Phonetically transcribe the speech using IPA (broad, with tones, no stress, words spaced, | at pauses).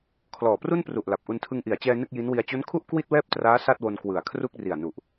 kʰlɔː˨˩pru˥˩npru˨˩ʔ la˨˩p̚ʔu˧ntʰɯ˧ŋ ʔi˩˦a̯t͡ɕɛː˧ nɯ˥˩k̚ji˦˥nwi˧a̯ t͡ɕo˦˥nkʰu˥˩ʔ kwi˥˩t̚wɛː˥˩p̚traː˦˥ sa˥˩t̚wo˧n kwɯ˨˩a̯ kʰru˥˩k̚ri˨˩a̯ nu˨˩ʔ